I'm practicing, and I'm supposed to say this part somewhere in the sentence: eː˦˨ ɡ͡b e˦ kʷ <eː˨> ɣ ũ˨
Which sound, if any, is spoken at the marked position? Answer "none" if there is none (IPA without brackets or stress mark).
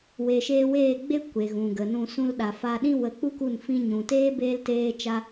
e˨